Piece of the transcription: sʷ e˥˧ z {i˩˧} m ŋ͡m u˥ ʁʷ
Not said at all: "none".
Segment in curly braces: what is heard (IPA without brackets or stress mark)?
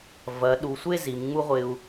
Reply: i˩˧